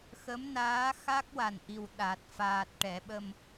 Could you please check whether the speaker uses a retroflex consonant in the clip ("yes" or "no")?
yes